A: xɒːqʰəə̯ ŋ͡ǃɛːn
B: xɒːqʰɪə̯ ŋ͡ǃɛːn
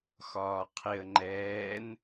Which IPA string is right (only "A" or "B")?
B